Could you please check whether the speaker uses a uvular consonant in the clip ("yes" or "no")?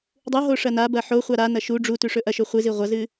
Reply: yes